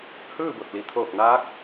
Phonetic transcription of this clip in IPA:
h ɯː˥˨ b o˧˩ t̚ l i˩˧ t̪ʰ oː˧˩ k̚ n aː˧˥ k̚

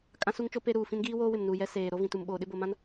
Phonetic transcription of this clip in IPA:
kʼ ã˦ s u˦ ŋ t͡ʃ o˦ p e˦ ɾ uː˨ f ĩ˦ n ɡ iː˦ w oː˦ w ɪ˨ m n u˨ j ɛ˦ s eː˨ ɾ o˦ v ĩ˨ t u˨ m ɓ oː˨ ɗ ɪ˦ b o˨ m ã˦ n

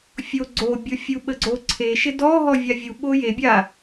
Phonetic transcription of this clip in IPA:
fʲ o ɡ͡ǀ o bʲ o fʲ u ɓ ə ɡ͡ǀ o ǀʰ e ʃ ɪ d ɔ ɦ ɔ vʲ a vʲ u ɓ o j e bʲ a

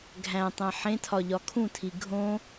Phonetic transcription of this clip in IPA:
ɡʱ æ̃ tˤ æ̃ ħ ẽ tʰ ɒ ʎ ɒ kʰ ũ tʰ i ɡʱ õ

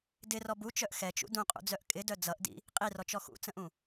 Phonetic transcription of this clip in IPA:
d ɪ r ɔ b u t͡ʃ œ ʔ x ɛ t͡ʃ ṵ d ũ qʼ ṵ d͡z œ ʔ kʼ ɪ d œ d͡z ʌ ʔ d ḭ | qʼ i r ɔ t͡ʃ ɔ x ṵ t͡s ə̃ ʔ ũ

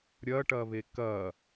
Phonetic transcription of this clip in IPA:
ɾʲ ɐ ʈ ɐ β e k ɐ

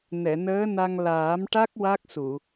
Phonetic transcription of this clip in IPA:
n ɛ˨˩˨ n əː˧˥ n a˧ ŋ l aː˨˩˦ m ʈ a˦˥ k̚ w a˦˥ k̚ s u˨˩˨

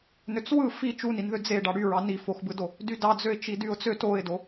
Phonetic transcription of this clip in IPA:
n ø t͡s w ɯ f i t͡ʃ u n i n ð ø d͡z e ɖ ɑ ɽ y ɹ ɑ n i f o x b ɯ d o | d y d ɑ d͡z ø ɪ̯ t͡ʃ i d y ʊ̯ t͡s ø t o ɪ̯ d o

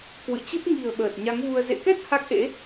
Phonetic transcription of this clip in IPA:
k w ɨ̰˧˨ t͡ɕ ɨ˦˥ p̚ ŋ i̤˨˩ ə̯ ɓ əː˨˩ t̚ ɲ a˨˦ ŋ v u˧ ə̯ z ḛ˧˨ k ɛ˦˥ t̚ h a˦˥ k̚ ʔ ḛ˧˥

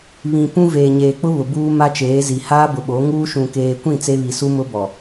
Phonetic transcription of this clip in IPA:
β ĩ˨ p ũ˦ v eː˨ ɲ eː˨ k͡p ʊ˦ β ʊ˨ b uː˦ m a˦ t͡ʃ eː˨˦ z i˨ h aː˦ b ʊ˨ ɓ o˨˦ ŋ uː˦ ʃ ũ˨ k eː˨ kʷ ĩ˦˨ t͡s e˦ β i˨ s u˦ m ʊ˦ b ɔ˨

